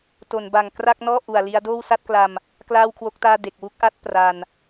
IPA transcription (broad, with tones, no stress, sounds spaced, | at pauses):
t o˩˦ n b a˨˩ ŋ k r a˥˩ k̚ n ɔː˥˩ ʔ u˨˩ a̯ l i˦˥ a̯ d oː˥˩ w s a˥˩ t̚ k l a˧ m | k l aː˥˩ w kʰ w o˦˥ k̚ t aː˥˩ d e˨˩ k̚ w u˥˩ k̚ ʔ a˦˥ t̚ p r a˧ n